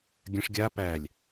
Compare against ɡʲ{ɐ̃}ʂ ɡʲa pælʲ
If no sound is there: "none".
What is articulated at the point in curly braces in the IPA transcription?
ɐ̃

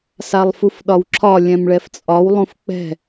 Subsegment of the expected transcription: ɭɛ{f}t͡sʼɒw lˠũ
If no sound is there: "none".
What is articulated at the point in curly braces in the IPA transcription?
f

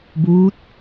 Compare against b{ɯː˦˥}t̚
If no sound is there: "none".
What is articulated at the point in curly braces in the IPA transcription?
uː˦˥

